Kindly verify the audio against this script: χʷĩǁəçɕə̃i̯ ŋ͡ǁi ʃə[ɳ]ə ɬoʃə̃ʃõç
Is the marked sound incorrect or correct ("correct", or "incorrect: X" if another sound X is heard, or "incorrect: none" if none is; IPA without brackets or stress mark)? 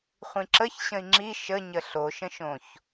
incorrect: ɲ